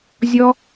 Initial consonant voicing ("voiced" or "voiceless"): voiced